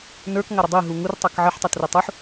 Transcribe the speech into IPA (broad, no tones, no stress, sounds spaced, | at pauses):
n ə˞ k ŋ a ɾ ə dˤ i ɦ u ŋ u r tˤ a k ʕ ə ħ tˤ a t r i tˤ u ħ